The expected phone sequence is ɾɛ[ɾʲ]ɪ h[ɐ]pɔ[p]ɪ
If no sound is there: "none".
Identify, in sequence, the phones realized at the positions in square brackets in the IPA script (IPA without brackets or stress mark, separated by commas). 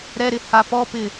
ɾ, a, p